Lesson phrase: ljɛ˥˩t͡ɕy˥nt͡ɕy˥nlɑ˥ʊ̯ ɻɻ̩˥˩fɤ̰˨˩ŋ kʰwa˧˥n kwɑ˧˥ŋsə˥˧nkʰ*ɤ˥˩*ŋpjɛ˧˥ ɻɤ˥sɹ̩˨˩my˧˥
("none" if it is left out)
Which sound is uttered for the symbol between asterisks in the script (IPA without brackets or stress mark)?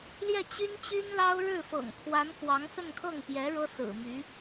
ɤ˥˩